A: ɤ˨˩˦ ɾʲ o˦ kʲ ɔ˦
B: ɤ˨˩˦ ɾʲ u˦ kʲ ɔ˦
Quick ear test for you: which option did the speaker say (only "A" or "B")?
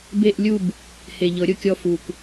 A